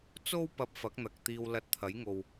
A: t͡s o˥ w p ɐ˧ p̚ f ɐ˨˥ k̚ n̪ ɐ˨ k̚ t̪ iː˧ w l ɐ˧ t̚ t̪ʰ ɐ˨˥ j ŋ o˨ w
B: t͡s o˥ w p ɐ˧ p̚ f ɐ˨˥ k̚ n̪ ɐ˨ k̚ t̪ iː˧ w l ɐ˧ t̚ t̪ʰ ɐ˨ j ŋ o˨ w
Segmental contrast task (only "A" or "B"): A